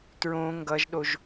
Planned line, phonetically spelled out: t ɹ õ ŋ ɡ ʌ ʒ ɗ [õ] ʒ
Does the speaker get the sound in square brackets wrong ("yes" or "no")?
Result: yes